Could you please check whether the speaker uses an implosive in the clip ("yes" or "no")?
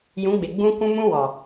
no